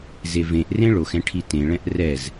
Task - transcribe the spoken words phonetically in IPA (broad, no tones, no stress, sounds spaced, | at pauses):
z e v ẽ ʔ r ẽ ɭ o x ɛ̃ ʈʰ i t ẽ ɭ ɛ̃ ʔ r ɛ z